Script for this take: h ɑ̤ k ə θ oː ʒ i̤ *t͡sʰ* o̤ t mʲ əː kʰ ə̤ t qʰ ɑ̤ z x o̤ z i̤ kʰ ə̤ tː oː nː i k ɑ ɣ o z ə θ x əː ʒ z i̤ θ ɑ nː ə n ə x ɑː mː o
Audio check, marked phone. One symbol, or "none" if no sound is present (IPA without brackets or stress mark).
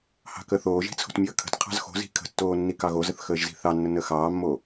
t͡sʰ